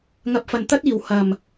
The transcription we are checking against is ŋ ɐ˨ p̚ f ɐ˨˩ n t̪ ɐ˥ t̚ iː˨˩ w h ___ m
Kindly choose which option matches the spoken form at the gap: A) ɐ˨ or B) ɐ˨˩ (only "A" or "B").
B